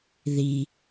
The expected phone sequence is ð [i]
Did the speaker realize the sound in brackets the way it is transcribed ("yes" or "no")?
yes